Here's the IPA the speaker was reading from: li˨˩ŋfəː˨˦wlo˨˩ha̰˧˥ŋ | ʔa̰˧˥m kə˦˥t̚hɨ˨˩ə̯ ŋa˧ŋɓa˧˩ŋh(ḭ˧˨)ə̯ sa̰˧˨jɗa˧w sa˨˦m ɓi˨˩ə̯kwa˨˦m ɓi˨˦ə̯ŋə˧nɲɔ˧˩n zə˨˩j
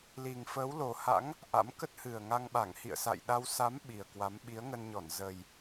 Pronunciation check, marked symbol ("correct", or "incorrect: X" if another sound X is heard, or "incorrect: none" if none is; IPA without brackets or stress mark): correct